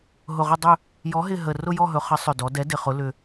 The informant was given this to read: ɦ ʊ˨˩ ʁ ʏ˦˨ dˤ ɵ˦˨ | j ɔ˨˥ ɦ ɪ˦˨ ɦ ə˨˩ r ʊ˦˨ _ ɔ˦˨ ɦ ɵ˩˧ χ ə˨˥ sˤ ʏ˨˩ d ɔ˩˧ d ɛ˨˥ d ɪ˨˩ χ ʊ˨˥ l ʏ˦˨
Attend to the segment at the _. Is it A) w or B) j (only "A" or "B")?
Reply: B